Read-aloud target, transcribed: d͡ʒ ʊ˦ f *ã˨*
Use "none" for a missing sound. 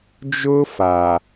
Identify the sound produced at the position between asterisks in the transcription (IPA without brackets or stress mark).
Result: a˨